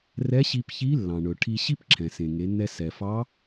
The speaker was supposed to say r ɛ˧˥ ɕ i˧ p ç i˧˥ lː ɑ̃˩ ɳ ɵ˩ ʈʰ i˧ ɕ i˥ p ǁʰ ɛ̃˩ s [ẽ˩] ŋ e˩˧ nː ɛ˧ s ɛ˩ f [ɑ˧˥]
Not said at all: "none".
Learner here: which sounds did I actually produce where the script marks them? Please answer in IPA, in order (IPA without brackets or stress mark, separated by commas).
ẽ˩, ɑ˧˥